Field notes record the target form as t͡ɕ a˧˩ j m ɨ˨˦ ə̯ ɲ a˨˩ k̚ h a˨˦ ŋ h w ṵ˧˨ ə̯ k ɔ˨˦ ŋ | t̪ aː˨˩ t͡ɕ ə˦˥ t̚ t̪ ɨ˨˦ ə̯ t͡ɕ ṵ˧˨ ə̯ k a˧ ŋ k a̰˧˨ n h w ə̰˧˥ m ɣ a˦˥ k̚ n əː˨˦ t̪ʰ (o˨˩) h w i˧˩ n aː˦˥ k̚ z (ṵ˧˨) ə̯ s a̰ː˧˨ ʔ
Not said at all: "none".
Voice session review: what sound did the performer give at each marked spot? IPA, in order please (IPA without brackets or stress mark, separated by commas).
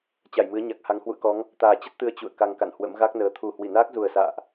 u˨˩, u˨˩